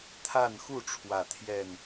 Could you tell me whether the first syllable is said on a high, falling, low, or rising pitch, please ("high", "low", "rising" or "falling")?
falling